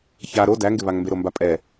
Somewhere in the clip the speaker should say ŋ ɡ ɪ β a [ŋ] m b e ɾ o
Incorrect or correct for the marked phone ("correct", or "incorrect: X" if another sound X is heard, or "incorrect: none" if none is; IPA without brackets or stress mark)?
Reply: correct